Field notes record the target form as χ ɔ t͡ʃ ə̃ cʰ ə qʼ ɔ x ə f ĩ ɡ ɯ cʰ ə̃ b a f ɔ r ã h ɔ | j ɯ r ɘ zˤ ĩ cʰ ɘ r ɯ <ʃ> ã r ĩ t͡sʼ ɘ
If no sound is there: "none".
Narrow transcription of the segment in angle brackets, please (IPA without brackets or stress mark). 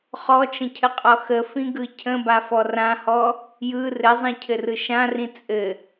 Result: ʃ